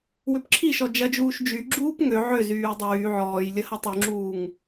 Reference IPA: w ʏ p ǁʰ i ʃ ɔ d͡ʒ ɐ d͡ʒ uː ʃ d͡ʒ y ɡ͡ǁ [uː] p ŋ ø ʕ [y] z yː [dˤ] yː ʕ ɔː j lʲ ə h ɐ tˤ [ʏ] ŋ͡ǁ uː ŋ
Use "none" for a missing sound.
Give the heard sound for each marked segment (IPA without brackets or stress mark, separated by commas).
uː, ʏ, dˤ, y